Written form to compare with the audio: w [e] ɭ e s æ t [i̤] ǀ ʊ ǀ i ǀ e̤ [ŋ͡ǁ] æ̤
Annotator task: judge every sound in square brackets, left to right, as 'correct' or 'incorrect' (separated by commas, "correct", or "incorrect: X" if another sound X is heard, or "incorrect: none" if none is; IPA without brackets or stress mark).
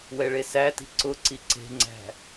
incorrect: ɛ, correct, incorrect: ŋ͡ǀ